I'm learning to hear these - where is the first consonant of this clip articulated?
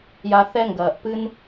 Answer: palate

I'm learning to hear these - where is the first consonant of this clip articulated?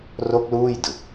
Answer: tongue tip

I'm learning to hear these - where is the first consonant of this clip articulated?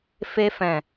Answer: lips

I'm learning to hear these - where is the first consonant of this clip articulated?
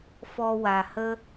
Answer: lips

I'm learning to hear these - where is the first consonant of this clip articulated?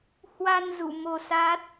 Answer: throat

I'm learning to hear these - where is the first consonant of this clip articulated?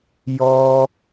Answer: palate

